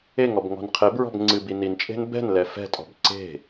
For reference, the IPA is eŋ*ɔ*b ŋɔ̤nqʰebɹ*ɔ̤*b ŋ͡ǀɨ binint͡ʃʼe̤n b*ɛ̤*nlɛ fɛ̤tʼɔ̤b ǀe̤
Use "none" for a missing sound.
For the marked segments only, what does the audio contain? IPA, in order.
ɔ, ɔ̤, ɛ̤

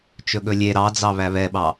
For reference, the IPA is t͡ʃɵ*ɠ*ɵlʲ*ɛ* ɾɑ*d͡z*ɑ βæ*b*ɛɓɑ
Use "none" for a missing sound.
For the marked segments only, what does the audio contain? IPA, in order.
ɠ, e, d͡z, β

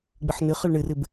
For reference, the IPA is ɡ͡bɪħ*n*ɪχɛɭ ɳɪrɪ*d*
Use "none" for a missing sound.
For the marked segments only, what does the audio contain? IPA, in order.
n, b

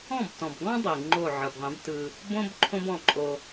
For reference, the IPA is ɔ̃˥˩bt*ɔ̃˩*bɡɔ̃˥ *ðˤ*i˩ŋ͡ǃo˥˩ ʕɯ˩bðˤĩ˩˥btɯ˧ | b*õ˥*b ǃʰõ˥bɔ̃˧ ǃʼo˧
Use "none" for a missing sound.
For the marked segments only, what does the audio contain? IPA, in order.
ɔ̃˩, dˤ, õ˥

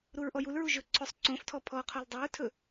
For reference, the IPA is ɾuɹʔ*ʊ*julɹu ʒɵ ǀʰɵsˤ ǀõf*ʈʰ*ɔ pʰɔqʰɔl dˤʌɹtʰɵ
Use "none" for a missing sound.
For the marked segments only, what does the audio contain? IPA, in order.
ɔ, tʰ

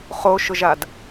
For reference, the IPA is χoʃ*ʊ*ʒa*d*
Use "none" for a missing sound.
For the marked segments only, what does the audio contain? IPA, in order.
ʊ, d

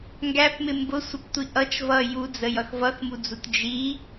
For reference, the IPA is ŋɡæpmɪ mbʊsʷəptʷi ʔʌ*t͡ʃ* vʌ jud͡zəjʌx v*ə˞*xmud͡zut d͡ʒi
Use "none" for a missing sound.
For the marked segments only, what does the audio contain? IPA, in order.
t͡ʃ, ʌ

